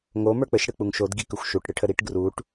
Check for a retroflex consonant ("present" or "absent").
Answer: present